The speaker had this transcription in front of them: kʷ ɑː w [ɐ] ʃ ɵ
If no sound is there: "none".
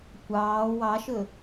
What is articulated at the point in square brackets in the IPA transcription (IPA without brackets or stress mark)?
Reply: ɑ